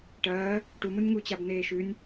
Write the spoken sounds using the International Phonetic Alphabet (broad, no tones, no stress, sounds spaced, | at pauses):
ʈ ɐː | ʈ u m u nʲ ŋ u t͡ɕ a b n eː ʃ ʉ nʲ